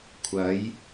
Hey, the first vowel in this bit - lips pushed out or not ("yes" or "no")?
no